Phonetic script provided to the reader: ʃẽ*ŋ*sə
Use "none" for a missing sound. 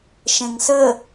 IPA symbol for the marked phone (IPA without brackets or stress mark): ŋ